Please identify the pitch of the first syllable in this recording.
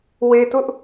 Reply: low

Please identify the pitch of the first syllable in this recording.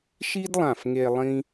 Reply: high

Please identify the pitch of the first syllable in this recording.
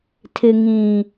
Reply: low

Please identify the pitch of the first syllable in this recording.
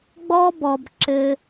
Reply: high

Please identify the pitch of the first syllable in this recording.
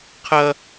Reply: high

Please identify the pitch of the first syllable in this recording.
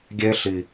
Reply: high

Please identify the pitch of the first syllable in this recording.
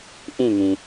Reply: falling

